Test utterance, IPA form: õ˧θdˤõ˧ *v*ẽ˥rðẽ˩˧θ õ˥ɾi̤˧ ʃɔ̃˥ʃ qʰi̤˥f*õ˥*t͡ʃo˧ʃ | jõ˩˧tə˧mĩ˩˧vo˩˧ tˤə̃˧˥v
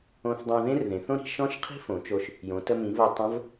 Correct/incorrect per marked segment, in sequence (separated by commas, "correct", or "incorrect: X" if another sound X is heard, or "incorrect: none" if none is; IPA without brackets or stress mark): incorrect: ð, incorrect: õ˩˧